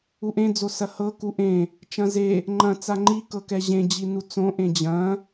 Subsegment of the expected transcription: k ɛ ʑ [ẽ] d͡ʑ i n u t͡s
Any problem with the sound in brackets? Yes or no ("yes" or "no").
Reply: no